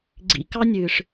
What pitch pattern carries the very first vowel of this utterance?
rising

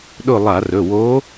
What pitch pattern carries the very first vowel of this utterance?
falling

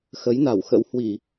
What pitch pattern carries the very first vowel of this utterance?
rising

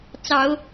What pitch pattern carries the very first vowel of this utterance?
low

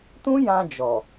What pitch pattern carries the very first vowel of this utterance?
high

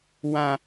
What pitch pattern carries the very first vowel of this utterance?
high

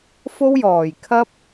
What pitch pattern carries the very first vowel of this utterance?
high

